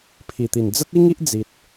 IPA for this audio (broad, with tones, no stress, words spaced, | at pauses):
pʰi˨˩t̪i˨˩n d͡zə˦t̚i˦ŋi˦ʔ d͡zi˨t̚